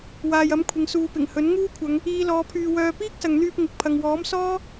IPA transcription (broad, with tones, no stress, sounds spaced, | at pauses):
w aː˨ j ɐ˨˥ m kʷʰ ɪ˨ ŋ s uː˨ p ɪ˨˩ ŋ h ɵ˨˥ n ŋ uː˥ kʷʰ ɐ˨˧ ŋ | iː˨˧ l ɔː˨˧ pʰ yː˧ w œː˧ p iː˥ k̚ s ɐ˨ ŋ n̪ yː˧ p̚ ŋ ɪ˨ k̚ pʰ ɐ˨ ŋ w ɔː˨˥ m s ɔː˥